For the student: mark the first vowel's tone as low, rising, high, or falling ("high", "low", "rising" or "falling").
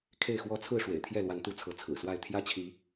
falling